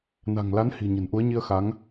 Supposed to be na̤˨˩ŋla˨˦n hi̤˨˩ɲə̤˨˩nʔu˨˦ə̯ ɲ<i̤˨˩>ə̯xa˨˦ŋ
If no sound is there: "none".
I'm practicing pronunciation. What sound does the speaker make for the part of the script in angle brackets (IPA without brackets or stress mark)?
i˧